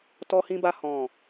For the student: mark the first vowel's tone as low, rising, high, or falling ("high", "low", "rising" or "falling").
high